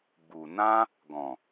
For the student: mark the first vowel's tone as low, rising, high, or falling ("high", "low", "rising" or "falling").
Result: low